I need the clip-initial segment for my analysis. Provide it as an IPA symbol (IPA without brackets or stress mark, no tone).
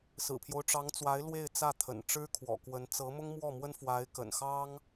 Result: s